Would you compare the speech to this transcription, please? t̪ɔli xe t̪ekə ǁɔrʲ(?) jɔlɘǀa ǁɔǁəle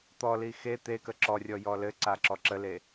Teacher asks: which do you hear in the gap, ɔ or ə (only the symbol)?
ɔ